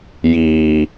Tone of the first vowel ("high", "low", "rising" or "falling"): low